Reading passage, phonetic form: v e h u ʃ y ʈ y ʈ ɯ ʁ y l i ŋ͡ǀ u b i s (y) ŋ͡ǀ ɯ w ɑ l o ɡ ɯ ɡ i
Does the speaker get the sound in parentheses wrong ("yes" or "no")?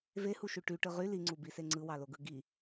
yes